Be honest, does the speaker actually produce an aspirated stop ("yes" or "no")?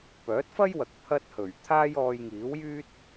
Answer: yes